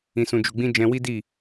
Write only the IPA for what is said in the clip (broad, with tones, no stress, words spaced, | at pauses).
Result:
ĩ˨sũ˨d͡ʒu˨ɡ͡bĩ˧ d͡ʒɛ̃˧wi˦di˦˨